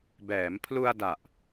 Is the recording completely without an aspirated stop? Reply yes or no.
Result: no